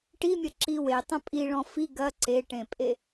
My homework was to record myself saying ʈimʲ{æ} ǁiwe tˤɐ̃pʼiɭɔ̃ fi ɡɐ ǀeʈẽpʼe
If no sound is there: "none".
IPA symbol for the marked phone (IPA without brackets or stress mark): ɐ